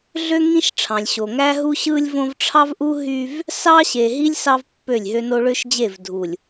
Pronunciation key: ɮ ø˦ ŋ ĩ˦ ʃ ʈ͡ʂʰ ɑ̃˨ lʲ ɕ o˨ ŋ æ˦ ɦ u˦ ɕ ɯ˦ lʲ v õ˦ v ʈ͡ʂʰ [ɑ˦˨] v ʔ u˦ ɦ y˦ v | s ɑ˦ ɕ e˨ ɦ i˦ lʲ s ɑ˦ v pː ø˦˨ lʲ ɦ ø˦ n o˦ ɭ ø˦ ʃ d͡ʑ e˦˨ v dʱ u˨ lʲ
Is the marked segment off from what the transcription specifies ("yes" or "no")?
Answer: yes